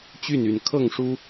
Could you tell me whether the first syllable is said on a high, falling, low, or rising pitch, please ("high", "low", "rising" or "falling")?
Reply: falling